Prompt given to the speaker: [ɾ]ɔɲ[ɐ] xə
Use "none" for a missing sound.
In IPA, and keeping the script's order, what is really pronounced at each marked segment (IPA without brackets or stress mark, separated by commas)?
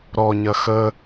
ɾ, ɐ